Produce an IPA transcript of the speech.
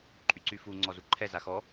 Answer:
ǃʼyǀyfu ŋ͡ǀɔzuǃʰɛ zaxɔ

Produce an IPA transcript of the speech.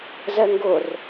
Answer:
zɛŋɡʊr

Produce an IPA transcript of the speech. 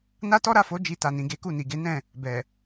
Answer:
na˦tɔ˦ɾa˦˨fo˨˦ d͡ʒi˧ta˨nĩ˨ɡe˨˦ ku˦˨ni˨ɡe˨˦ nɛ̃˦˨ | bɛ˨

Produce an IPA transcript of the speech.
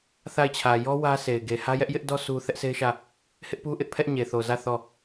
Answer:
θa˦˨ɪ̯t͡ɕʰä˨ jɔ˦ wä˦se˨ɪ̯ ɡe˨hä˦jɛ˦ʔ jɪ˦ʔdɔ˦ sʰu˦ θɛ˦ʔse˦ɪ̯ʃä˦˨ | hɪ˦ʔpu˦ʔɪ˦ʔpʰɛ˦ʔ ɲe˨θo˨zä˦˨ θɔ˦˨

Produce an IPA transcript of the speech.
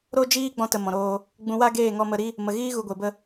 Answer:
ɾo˦d͡ʒiː˦ ɡ͡bɔ̃˧tə˨ mɔ̃˨ɾoː˧ | ɡ͡bũ˧wa˦ɡeː˦˨ŋɔ˧ mə˧ ɾi˦ | mə˨ɣiː˦ ɣu˨ɡʷe˨bə˧

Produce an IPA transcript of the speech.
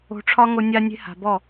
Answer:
o̤˧ʈ͡ʂʰɒ˦ŋo˧ nʲa˦nʲe̤˦ha̤˨ bɔ˦˨

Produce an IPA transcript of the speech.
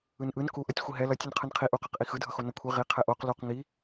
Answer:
ɯnʔɯn kuʔʌtʲ xʷiɦɛ lʌtʲ ɯnqʰɯnqʰi ʔuqaq ʔixɯdʱʌxo nʌkʷʰi ʁi qʰɛʔoq luq ŋi

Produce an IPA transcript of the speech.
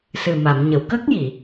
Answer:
sɨ˨˩ma˨˩˨mɲə˨˩˨w kə˦˥k̚ji˨˩˨

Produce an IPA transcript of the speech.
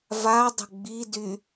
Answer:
vadˤə̤ ɡ͡bidy

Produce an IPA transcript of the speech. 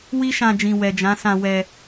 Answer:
wi˦ʃã˧d͡ʒĩ˨ wɛ˨d͡ʒã˨˦sã˧ wɛ˧

